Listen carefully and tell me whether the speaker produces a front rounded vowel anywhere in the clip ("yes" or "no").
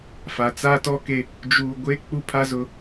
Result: no